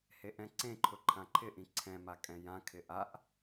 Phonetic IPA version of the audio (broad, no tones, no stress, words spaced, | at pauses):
heʔɛ̃ǀẽǃʰʊ ǃʰãǃʰɪʔĩ ǀʰɛ̃ma kʼɛ̃jãkʰɪ ʔaʔ